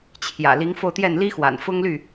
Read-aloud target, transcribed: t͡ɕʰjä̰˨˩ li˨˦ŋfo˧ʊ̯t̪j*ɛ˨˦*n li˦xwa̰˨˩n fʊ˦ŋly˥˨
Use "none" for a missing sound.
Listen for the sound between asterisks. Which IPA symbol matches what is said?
ɛ˥˨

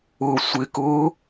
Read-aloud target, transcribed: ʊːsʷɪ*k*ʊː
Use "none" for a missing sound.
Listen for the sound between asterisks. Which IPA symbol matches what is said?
k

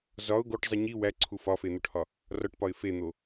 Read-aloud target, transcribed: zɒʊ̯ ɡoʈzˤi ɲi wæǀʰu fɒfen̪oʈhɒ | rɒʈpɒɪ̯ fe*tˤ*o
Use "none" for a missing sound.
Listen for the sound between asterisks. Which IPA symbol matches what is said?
n̪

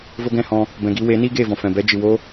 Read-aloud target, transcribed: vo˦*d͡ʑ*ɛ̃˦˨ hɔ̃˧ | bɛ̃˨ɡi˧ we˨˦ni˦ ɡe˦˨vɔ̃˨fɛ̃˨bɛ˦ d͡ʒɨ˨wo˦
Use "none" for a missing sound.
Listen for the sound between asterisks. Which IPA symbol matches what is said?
ɡ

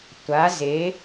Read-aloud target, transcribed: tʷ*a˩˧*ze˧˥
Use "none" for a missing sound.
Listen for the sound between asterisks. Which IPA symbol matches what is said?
a˧˥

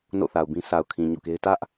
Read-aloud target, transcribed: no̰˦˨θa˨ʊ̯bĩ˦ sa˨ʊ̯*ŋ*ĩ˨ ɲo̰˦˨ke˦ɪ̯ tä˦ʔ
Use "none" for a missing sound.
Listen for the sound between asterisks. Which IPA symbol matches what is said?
kʰ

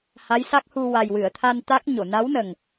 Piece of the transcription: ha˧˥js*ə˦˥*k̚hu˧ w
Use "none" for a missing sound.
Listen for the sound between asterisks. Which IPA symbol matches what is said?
a˦˥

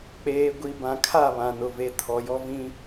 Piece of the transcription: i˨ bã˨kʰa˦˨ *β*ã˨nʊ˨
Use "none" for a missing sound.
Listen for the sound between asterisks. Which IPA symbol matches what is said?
β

